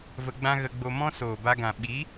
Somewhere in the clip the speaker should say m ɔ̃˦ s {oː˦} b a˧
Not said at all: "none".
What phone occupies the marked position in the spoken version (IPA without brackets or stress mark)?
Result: oː˨